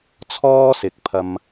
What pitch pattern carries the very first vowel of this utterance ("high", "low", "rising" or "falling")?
high